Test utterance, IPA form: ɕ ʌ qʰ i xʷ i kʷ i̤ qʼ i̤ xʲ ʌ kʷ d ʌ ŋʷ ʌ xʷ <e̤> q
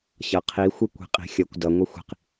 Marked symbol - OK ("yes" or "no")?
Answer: no